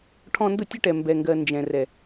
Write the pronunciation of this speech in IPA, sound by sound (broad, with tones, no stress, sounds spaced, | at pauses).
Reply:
ʈʰ ɔ̃˧ n d ʊ˦˨ tʲ ə˦ ʈ ɛ˨ m b ɛ˨ ŋ ɡ ɜ˨ n d͡ʒ ɛ̃˨ r ɛ˨